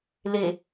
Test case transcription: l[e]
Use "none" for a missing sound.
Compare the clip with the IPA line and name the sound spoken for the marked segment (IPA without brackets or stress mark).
e